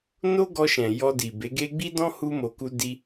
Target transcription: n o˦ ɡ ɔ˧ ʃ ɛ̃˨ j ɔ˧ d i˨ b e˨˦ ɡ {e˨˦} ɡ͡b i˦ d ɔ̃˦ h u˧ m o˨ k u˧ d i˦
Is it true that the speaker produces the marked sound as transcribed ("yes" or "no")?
no